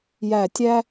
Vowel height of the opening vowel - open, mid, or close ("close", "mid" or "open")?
open